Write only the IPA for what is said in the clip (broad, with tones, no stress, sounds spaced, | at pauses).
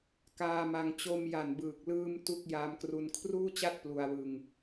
k aː˧ m a˧ ŋ t͡ɕ o˧ m j a˨˩ n b ɯː˨˩ k̚ l ɯː˧ m t u˥˩ k̚ j aː˧ m k r u˧ n kʰ r uː˥˩ t͡ɕ a˥˩ t̚ p l u˧ a̯ w ɯ˧ ŋ